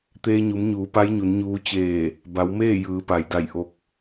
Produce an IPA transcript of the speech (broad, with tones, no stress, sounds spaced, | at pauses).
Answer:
t̪ eː˧ ɲ u˩˧ m ɲ uː˩˧ p a˧˥ j ɲ u˩˧ n ɲ uː˧˥ t͡ɕ eː˧˩ | b a˩˧ w m eː˥˨ j ɯː˩˧ p a˩ j d a˧˩ j ʔ o˧ k̚